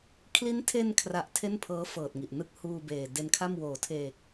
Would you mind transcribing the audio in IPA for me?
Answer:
kʰ l i˦˥ n tʰ e˧ n kʰ r a˨˩ ʔ tʰ e˥˩ n pʰ ɤː˦˥ f ɤː˨˩ t̚ ŋ i˨˩ ʔ n ɯ˥˩ k̚ h uː˧ b eː˨˩ d e˧ n kʰ a˥˩ m w oː˩˦ tʰ eː˨˩ k̚

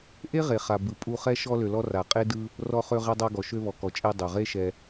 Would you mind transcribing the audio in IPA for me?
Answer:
ʔ e˦ ʁ e˨ χ a˨ b ɯ˨ pʼ u˧ χ ɛ˦ ʃ ɔ˧ l ø˨ l ɔ˧ r a˨ qʼ e˦ d ɯ˦ | r ɔ˧ χ ø˧ ʁ ɛ˧ dˤ a˧ ɡ ɔ˨ ʃ ø˧ β ɔ˨ k ɔ˨ t͡ʃʼ e˧ dˤ ø˨ ʁ e˦ ʃ ɛ˧

